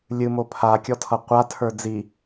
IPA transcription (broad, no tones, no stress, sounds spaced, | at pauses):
lʲ ɨ m o pʰ a kʲ ɔ tʰ ʌ qʷ a tʰ ə˞ d͡z i